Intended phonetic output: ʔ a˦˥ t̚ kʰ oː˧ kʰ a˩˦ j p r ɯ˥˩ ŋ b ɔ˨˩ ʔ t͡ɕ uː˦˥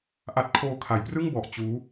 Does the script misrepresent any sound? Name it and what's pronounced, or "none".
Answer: none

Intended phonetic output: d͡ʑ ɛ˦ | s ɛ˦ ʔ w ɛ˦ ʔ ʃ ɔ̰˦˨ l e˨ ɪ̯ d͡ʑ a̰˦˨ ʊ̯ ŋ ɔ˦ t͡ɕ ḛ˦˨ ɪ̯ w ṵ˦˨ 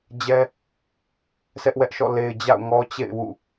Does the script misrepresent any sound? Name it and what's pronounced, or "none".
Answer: none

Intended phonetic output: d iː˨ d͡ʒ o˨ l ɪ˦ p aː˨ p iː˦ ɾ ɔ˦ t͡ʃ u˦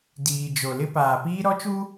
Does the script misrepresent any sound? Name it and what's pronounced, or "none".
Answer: none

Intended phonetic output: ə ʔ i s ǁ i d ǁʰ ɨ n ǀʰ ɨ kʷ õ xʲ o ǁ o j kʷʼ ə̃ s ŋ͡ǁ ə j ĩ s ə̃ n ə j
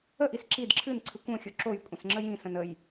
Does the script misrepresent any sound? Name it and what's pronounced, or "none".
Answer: none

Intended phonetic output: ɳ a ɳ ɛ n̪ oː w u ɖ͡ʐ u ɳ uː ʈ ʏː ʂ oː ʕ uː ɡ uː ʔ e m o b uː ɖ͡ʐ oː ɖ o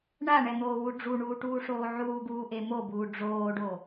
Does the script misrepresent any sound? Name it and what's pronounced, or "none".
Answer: ʏː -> uː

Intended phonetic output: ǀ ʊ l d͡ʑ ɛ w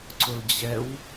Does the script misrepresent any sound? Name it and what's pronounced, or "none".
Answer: none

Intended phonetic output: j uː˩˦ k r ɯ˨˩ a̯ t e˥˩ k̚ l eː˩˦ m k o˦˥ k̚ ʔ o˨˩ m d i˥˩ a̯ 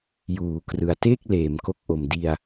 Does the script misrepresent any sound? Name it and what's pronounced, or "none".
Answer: i˥˩ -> i˧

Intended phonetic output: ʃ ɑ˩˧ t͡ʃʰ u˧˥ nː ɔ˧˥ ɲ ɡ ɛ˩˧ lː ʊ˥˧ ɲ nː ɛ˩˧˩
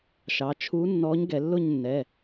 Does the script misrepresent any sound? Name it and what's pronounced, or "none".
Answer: none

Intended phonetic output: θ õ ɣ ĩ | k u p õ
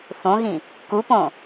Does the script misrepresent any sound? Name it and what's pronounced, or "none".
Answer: none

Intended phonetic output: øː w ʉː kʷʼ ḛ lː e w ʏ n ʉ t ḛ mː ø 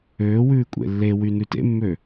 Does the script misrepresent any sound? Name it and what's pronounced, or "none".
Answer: ʏ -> y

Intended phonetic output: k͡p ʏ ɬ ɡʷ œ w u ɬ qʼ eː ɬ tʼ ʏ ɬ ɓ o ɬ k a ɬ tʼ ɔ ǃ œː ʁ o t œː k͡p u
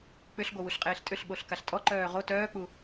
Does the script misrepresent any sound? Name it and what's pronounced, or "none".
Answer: none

